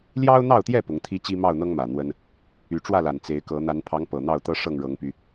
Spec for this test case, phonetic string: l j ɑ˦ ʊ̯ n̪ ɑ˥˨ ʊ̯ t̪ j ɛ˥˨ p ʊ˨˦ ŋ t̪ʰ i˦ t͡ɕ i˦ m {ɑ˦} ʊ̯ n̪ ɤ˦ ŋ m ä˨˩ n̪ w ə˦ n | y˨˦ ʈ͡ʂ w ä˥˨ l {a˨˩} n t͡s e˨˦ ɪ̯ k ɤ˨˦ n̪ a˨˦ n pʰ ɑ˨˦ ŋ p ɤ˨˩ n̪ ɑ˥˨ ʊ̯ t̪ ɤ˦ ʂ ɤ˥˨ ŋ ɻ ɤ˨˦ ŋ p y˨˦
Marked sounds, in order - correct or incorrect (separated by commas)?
incorrect, correct